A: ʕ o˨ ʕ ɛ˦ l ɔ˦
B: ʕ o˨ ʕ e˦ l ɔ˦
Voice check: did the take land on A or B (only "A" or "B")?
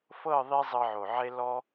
B